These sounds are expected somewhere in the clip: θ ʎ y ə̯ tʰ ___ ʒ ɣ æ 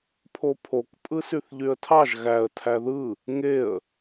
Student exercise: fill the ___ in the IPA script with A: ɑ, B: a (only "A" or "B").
A